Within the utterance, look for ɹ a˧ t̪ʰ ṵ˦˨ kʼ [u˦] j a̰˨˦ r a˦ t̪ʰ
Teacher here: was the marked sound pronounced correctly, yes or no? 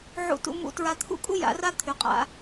yes